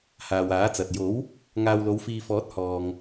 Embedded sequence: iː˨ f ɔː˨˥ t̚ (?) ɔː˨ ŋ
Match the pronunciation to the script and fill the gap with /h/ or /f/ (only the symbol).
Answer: h